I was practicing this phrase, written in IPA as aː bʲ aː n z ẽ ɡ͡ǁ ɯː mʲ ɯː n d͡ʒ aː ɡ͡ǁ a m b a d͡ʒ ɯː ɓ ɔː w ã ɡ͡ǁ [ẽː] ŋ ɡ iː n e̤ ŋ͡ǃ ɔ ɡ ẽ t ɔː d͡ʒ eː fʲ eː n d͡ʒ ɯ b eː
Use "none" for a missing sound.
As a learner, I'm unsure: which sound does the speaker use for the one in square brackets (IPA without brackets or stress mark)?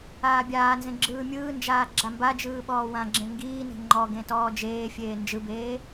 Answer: ẽ